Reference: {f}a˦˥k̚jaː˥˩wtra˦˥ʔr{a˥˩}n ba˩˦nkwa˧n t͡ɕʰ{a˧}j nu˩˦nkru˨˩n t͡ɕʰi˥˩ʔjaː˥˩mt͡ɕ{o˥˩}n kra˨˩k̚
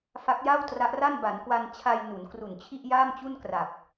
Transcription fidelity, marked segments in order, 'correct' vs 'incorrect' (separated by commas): correct, correct, correct, incorrect